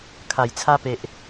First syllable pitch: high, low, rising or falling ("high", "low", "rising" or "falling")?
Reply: low